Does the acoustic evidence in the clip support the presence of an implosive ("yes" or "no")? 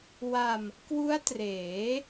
no